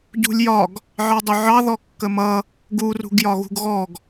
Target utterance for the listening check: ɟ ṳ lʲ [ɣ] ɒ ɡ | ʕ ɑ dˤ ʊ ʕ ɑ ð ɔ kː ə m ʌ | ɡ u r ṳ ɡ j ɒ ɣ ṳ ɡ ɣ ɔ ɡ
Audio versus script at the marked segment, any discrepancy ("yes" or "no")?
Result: yes